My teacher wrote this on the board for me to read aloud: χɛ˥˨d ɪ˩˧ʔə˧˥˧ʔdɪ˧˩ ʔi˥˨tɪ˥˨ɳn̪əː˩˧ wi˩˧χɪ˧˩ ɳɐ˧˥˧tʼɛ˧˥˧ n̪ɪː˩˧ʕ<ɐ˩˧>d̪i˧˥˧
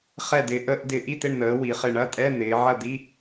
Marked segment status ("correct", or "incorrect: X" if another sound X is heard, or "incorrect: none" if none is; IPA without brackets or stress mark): incorrect: ɐ˥˨